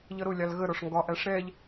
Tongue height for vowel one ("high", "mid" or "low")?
mid